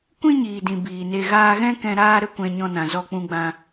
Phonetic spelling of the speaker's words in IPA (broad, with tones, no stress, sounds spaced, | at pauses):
kʷ ĩ˦ ɲ iː˨ d ĩ˨ b iː˨ n e˧ ɣ aː˧ ɣ ɛ̃˦ k ɛ̃˧ ɾ aː˦ ɾ ə˦ kʷ ɛ̃˧ ɲ ɔ̃˧ n ã˨ z ɔ˧ k͡p ũ˧ ɡ͡b ã˧